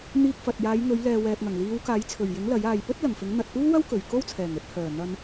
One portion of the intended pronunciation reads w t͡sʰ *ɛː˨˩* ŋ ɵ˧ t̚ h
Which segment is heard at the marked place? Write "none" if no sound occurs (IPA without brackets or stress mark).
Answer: ɛː˨˩